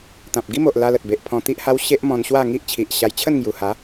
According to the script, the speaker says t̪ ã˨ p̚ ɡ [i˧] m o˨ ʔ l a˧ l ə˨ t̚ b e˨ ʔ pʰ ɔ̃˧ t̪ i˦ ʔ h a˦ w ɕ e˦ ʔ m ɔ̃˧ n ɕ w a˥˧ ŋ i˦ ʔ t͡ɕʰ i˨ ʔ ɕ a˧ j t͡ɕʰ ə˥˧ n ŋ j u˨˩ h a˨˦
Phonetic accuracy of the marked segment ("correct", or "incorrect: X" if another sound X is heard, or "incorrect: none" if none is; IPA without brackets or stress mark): incorrect: i˦